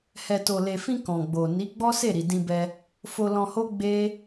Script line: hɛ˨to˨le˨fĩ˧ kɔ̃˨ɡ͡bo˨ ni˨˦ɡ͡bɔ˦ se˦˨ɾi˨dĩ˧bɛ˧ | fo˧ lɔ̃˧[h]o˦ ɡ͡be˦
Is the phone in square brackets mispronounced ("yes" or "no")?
no